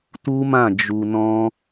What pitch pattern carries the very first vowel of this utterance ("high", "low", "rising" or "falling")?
high